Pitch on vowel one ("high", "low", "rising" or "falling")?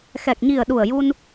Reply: low